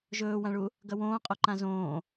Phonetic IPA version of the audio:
ʒ ɵː w ã ɭ u | ɡ ɐ w õː qʼ o ǃ ã z õː

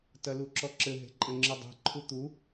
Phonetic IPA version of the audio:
t ɐ l u ǁ ɔ ǁ ɘ ɦ e̤ ǃʼ ɘ ŋ͡ǁ ɨ dˤ e̤ ǃʰ u t̪ u

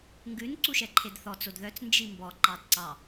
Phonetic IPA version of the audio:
ŋ ɡ ʉ n ǀ u ʃ ɛ ǃʰ e d θ ɔ t͡s o d ð œ t͡s n d͡ʒ i m b ɔ ǃ ɑ d ǀ ɑ

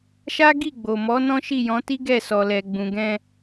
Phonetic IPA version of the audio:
ʃ a˦ ɡ i˦˨ ɡ͡b o˨ m ɔ˨˦ n ɔ̃˦ ʃ i˦˨ j ɔ̃˨˦ t i˦ ɡ ɛ˦˨ s ɔ˨ l ɛ˨ ɡ͡b ũ˨ ɡ ɛ̃˧

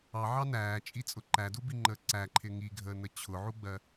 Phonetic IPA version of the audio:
ɑ ʕ ɑ n æː t͡ʃʼ i t͡sʼ ʊ ǃ æ d u b i ŋ͡ǃ əː ǀ æ ǃʰ ɪ ŋ i ɡʱ əː n ə t͡ɕʰ ʊ ʕ u ɡ͡b ɜ

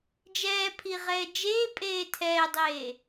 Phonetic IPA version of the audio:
d͡ʒ ɛː pʰ i ʁ ɛː d͡ʒ eː pʼ eː tʰ ɛː dˤ eː

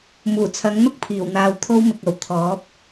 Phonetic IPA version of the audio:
m uː˨˩ t͡sʰ ɐ˨˥ ŋ n̪ ʊ˥ k̚ pʰ iː˨˩ w n̪ aː˧ w t̪ʰ o˥ w m ɪ˨ k̚ ɐ˨˩ w t̪ʰ ɔː˨˥ p̚

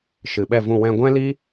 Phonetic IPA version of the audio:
ʃ ɨ˨ ɓ ɛ˦˨ v ũ˦˨ w ɛ̃˧ ɡʷ ɛ̃˦ l i˦

